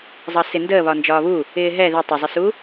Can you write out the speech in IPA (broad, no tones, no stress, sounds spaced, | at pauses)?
zˤ ʌ s ɪ n d əː β ɒ n d͡ʒ ɒː β u | ɪː ɦ ɛ ð ɪ tˤ ɪ zˤ ɪ s u